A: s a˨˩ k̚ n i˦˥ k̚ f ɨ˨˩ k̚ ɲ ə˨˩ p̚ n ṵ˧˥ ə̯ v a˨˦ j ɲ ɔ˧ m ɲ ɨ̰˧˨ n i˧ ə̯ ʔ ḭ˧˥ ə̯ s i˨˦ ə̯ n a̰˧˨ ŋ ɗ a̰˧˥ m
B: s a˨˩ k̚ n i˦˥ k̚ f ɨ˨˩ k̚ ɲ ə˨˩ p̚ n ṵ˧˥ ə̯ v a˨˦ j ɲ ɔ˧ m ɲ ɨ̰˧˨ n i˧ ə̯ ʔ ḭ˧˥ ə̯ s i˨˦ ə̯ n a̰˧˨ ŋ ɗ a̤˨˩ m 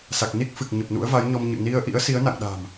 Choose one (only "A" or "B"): B